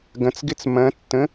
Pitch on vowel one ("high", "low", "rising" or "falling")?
rising